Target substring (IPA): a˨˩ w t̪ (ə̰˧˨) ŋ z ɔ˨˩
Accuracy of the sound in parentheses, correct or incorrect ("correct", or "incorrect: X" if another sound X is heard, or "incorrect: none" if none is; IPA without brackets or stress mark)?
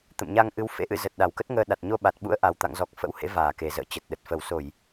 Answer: incorrect: a̰˧˨